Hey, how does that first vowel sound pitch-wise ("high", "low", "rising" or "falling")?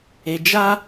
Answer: low